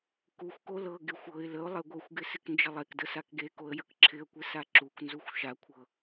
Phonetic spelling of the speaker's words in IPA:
kuxʷko lɤ ɡɪxʷ ɤɪ̯ ləʊ̯ lˠeɡʷɤxʷɡɪ sɪknd͡ʒəlˠekdə sakɡekoə̯ jəkǁʰɪə̯kʷɪ saǁuknzuxʷ ʃakʷʰɤ

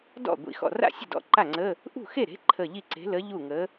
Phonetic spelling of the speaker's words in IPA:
dɔ̰˥˩ ɡʷḭ˨˥xɔ̰˧˩ra̰˥˩sʲə̤˥˩ dɔ̰˧˥˧ǃa˥˩ŋ͡ǀə˧˥˧ | ʔṳ˥˩xe˥˩ɾe̤˨˥ ǃʰə˧˩ ʎi˥˩ǀe̤˨˥lə˨˥ ʎu˥˩ŋə˨˥

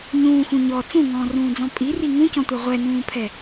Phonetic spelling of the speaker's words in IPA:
ɲũːxũ ɲɔ t͡sũŋɔ̃ːrũːd͡zɔ̃ pʼiri ŋũcɔ̃tʷɛ ʁʷɛnũːpʰɛ

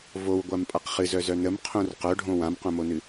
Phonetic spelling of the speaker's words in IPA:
vowɡʷampʼaq χɨzœzœ nəmqʰõr qœɖʱõ wãmqõmonɨ

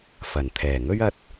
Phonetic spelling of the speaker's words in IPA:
fɐ˨˩nt̪ʰɛː˨˩ ŋɵ˥ɥɐ˧t̚

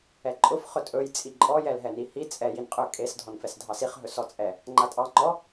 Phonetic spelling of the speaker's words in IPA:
ɛǃʼʊf χɵtʼɵj t͡sʼiǃʼɔ jɛlɦɛnihi t͡sʼɛ jinqʼɵ kʼes dʱɔnfɛsdʱɑsiχ ɦɵsɔt͡sʼɛ | ŋ͡ǃatʼɑ ŋ͡ǃɔ

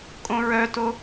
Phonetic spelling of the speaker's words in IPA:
kʼõɹœto

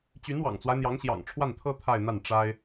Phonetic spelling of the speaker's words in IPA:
t͡ɕy˧˥nwɑ̰˨˩ŋt͡swa˦ɪ̯ n̪jɑ˧˥ŋɕjɑ̰˨˩ŋʈ͡ʂʰwa˥˩nt̪ʰɤ˥ t̪ʰa˥˧ɪ̯n̪a˥˩n ʈ͡ʂa˥ɪ̯

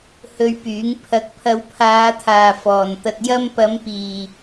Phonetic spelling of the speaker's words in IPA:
hɵ˧ɥpyː˨˥ŋ pʰɐ˨˥k̚pʰɐ˨˧wpʰaː˨˧t̪ʰaː˨ fɔː˨nt̪ɐ˧t̚jɐ˥m pɐ˨˧mpiː˨

